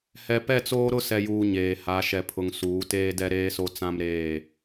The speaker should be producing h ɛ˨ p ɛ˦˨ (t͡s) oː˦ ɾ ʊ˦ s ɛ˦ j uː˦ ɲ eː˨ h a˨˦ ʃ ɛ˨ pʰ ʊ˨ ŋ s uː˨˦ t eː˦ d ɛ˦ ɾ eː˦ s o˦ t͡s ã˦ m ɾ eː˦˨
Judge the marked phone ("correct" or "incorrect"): correct